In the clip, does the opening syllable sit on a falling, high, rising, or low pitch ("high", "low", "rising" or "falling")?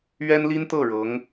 high